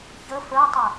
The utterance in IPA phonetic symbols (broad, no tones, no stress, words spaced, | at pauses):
çə fə˞tˤə